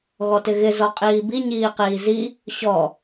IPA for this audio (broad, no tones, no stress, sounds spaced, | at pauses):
ɣ ɔ t ɪ ɣ ɪ z ɔ qʼ iː b i ɲ iː q iː z i | ɕ ɔ